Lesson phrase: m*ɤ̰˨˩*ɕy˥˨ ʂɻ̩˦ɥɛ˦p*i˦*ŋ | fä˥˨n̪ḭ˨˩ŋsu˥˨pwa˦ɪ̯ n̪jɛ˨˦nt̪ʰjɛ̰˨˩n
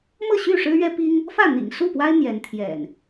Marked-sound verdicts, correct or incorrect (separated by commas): incorrect, correct